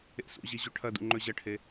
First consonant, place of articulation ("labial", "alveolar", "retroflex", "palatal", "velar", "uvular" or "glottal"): alveolar